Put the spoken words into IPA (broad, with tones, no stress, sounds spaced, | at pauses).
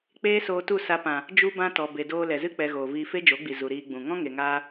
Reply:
k͡p eː˦ s oː˧ t u˦˨ s a˧ p ã˨ | d͡ʒ u˦ b ã˦ t ɔ˨ b e˨ d oː˧ l ɛ˨ z ɨ˦ k͡p ɛ˧ ɣ oː˨ v iː˧ f e˦ d͡ʒ o˨˦ ɡ͡b i˨ z u˨ ɾ iː˧ ɡ͡b ũ˨ ŋ ɔ̃˦ ŋ e˨ ŋ aː˧